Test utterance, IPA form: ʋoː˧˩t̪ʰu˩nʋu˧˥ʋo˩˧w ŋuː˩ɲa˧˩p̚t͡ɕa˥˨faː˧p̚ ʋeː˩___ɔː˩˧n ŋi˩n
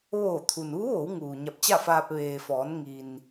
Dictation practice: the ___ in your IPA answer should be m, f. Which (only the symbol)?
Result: f